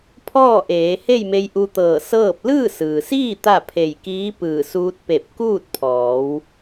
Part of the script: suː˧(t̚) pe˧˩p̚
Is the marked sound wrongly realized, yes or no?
no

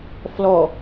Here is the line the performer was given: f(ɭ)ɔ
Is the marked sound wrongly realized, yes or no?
yes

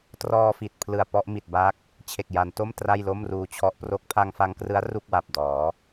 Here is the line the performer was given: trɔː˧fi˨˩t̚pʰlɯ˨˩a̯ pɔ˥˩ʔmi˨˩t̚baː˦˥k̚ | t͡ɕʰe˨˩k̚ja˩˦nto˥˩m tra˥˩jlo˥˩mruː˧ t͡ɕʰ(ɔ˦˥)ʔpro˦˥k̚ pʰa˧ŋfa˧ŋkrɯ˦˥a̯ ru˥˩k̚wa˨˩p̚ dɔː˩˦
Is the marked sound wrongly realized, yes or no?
no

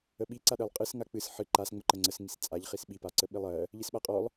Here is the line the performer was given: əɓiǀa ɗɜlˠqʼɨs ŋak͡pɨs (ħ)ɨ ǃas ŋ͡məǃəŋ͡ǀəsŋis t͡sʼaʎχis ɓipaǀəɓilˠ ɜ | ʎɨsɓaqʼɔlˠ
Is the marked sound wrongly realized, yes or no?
no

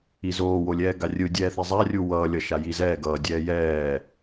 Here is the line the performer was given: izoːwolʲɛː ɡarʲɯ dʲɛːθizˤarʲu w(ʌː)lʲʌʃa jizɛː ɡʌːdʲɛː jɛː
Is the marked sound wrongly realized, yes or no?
no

